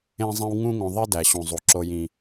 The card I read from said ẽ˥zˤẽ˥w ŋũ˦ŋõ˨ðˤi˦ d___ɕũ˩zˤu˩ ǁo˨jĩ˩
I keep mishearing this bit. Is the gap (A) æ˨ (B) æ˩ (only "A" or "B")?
B